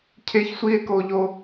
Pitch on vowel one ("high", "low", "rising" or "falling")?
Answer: high